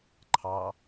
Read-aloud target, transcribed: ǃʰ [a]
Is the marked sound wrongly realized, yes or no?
yes